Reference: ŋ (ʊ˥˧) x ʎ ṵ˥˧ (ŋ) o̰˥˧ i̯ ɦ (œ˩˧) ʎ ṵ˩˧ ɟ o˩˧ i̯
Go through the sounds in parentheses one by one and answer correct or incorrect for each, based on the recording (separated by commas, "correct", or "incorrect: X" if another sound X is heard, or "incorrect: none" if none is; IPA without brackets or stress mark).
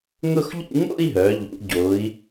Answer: correct, correct, correct